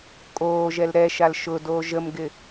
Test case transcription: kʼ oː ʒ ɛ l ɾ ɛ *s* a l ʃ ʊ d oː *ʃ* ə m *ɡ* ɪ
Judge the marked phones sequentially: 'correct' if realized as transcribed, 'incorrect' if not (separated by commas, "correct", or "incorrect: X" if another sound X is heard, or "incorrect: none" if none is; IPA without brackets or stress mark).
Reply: incorrect: ʃ, incorrect: ʒ, correct